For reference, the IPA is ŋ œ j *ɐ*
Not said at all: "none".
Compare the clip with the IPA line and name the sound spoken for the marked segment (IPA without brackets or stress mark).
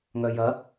ɐ